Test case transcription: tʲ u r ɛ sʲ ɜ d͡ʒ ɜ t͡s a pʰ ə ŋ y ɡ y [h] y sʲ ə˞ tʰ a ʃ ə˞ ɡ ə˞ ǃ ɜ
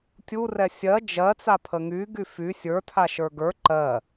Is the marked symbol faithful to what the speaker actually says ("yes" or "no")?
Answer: no